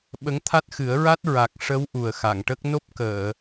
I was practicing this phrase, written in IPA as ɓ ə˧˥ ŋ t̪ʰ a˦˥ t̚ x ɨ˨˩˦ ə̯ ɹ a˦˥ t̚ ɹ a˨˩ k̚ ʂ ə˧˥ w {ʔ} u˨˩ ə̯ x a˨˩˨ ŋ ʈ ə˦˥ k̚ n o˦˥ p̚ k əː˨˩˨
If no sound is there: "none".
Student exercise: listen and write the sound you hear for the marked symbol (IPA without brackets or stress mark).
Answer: ʔ